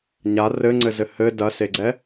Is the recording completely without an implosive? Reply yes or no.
yes